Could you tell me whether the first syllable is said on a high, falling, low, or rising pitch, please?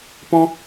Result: high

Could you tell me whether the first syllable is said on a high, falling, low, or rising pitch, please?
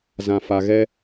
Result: low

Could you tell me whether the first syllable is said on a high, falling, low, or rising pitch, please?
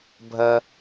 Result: high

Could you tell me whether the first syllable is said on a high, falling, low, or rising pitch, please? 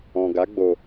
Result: low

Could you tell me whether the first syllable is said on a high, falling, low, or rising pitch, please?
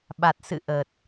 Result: low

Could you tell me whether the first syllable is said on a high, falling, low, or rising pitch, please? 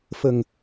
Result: low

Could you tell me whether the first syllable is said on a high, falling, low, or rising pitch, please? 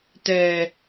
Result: low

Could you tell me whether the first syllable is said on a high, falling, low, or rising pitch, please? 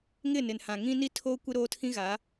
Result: falling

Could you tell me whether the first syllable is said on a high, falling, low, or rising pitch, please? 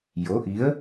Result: rising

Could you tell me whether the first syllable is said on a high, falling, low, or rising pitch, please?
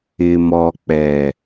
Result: low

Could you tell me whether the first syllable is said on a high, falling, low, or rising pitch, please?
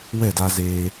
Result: falling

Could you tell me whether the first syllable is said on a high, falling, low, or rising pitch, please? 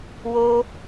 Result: high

